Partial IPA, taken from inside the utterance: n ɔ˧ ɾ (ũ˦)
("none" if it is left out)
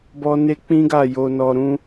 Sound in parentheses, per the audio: ũ˦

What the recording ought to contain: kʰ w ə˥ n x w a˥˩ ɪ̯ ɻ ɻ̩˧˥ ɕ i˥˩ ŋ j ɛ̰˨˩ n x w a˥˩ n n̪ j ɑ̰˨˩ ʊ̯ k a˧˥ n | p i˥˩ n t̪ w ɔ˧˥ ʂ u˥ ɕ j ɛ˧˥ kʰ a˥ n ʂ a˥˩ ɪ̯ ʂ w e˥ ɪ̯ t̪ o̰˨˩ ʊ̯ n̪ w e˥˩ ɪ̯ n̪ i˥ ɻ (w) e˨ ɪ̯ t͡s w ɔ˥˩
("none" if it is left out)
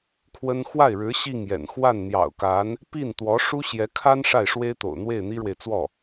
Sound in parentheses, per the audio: w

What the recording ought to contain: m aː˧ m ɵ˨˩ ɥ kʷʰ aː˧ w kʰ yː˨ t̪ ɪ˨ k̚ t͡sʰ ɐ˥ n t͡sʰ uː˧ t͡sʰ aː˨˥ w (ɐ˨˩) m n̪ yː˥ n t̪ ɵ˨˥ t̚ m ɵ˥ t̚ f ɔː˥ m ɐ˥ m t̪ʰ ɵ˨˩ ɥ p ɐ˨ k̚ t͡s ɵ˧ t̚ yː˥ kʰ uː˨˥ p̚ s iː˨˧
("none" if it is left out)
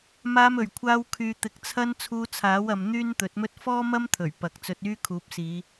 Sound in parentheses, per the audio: ɐ˨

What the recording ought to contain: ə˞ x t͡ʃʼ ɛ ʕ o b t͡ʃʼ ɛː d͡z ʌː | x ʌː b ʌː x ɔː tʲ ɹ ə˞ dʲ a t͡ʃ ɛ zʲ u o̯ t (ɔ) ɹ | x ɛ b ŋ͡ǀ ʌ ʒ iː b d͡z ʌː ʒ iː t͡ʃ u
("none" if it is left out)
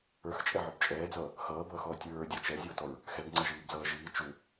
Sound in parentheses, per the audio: ɔ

